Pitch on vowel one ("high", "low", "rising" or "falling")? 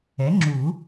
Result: rising